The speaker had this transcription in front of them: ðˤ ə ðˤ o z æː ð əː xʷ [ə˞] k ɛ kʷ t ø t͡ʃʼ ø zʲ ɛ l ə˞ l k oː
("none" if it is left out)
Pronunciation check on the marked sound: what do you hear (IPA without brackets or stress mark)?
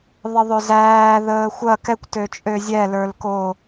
ɐ